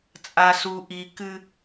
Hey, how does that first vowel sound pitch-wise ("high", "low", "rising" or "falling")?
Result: high